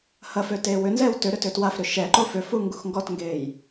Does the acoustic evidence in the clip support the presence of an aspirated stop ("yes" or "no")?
no